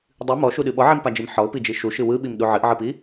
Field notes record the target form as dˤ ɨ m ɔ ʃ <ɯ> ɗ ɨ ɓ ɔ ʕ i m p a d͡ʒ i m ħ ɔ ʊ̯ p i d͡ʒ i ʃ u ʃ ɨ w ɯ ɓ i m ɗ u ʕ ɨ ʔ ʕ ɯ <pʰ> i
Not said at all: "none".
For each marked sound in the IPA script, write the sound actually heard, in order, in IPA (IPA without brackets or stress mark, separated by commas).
u, p